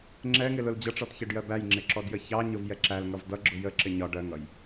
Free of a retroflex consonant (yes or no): no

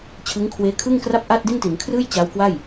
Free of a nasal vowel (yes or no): yes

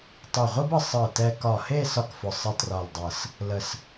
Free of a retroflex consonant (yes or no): yes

